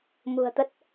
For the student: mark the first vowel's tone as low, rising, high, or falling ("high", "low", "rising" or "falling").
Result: low